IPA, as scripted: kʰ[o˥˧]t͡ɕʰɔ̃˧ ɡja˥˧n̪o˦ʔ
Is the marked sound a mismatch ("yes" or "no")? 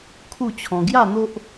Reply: yes